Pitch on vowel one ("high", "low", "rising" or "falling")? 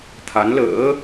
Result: rising